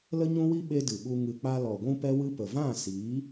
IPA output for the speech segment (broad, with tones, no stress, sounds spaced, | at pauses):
l ə˦ ɲ ũ˦ w i˦ ɓ e˦ d ɨ˨ ɓ u˧ ŋ ɨ˨ k͡p a˧ l ɔ˨ ɡʷ ũ˧ p ɛ˧ w ɨ˧ p ə˨ v ã˦˨ s iː˨˦